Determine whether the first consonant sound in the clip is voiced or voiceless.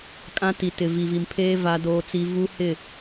voiceless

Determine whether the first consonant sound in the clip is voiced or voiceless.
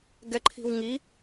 voiced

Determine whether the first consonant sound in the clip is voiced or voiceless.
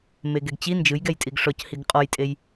voiced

